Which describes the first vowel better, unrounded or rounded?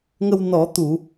unrounded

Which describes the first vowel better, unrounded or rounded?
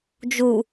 rounded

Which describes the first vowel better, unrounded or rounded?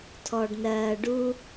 rounded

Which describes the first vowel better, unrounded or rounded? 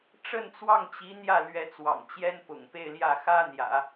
unrounded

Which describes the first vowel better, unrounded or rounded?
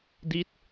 unrounded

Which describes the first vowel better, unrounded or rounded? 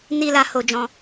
unrounded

